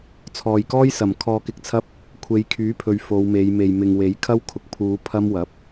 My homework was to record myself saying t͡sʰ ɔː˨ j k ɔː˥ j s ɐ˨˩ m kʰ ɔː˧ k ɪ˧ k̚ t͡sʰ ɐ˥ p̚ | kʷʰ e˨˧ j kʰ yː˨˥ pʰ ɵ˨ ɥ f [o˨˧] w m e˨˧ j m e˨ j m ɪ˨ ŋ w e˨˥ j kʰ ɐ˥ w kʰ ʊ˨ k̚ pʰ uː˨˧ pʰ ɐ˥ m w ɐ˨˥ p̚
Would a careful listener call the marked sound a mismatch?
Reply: no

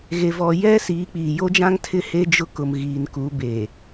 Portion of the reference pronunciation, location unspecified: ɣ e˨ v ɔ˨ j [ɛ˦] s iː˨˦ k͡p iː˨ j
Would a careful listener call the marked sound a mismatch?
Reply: no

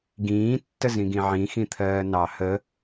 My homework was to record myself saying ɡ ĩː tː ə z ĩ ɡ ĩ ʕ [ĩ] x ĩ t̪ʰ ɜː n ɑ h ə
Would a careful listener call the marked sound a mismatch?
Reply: no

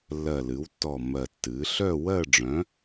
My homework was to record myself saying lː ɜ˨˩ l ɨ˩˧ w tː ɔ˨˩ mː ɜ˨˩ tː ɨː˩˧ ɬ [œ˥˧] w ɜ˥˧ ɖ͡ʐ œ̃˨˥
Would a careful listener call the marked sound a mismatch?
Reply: no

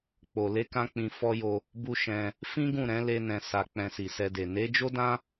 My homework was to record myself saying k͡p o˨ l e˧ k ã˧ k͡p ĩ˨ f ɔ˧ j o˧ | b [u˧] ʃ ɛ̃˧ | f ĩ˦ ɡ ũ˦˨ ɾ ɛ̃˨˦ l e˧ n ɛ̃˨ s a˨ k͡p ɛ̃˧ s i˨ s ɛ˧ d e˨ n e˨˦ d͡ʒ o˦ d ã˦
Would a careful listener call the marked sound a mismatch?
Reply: no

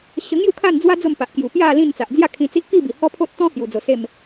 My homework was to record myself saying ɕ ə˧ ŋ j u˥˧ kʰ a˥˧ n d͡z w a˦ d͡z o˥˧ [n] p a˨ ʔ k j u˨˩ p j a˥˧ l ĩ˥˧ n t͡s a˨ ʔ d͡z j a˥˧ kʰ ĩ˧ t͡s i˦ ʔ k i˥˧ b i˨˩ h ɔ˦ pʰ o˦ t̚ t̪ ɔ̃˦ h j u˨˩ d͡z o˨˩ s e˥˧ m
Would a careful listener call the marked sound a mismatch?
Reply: yes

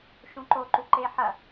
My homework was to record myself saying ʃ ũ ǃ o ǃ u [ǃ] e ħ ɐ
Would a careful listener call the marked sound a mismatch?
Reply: no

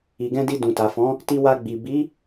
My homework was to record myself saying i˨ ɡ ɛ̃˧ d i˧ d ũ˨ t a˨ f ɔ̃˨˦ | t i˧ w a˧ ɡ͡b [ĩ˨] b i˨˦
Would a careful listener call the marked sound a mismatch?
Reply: yes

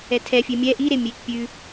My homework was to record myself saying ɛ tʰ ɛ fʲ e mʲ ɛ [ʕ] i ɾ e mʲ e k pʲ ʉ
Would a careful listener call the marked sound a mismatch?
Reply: yes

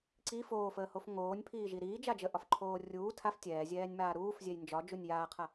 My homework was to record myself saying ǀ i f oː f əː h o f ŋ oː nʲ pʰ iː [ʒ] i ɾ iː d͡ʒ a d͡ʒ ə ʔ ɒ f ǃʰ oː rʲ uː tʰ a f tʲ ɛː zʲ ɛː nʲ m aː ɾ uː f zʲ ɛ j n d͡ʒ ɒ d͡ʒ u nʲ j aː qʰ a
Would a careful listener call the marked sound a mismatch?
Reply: no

